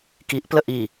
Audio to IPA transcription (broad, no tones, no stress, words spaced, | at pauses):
kiʔpləʔ i